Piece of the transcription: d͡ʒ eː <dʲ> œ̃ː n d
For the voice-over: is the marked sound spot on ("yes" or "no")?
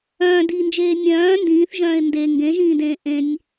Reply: no